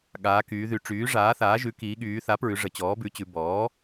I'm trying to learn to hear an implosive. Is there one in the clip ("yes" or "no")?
yes